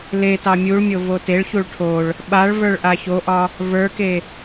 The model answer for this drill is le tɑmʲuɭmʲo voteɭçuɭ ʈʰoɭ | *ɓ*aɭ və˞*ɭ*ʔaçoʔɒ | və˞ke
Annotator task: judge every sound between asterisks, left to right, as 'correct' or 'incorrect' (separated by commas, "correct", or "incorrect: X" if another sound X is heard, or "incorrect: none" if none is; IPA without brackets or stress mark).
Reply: correct, correct